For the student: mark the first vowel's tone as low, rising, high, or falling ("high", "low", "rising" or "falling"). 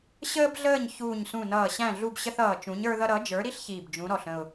high